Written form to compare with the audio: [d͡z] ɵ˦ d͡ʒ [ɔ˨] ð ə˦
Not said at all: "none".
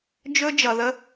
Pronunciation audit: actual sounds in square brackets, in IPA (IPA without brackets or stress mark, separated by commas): d͡ʒ, ʌ˨